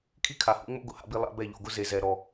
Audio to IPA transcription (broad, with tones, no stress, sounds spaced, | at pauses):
kʰ i˦ kʰ a˨ h ṵ˦ ŋ͡m o̰˦ ɡ ʊ˨ h a̰˦ b i˦ lˠ a̰˦ b ɛ˦˨ ʎ o̰˨ ɡ ʊ˦ z e˨ z ɛ˨ ɾ ɔ˨